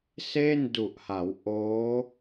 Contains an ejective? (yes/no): no